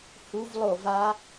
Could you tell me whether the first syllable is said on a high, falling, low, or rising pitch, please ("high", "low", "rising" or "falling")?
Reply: high